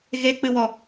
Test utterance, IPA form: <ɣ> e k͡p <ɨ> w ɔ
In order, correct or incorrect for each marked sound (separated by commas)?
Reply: correct, correct